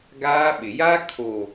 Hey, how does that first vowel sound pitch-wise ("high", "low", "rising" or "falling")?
high